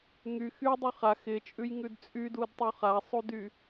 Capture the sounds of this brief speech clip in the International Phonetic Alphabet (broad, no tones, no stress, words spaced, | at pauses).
ŋy xydˤy χa xɪt͡ʃʼʉjŋʉd t͡sʼydudtˤu χasˤudy